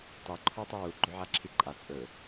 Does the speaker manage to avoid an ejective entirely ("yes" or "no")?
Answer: no